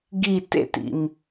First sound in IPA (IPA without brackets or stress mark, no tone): ɡ